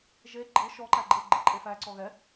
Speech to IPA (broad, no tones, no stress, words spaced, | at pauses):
ʒe ɡ͡ǃɯ ʃɔǃæ ɡ͡ǃɯ ɡ͡ǃɯǃʼefæ ǀɔɣɛ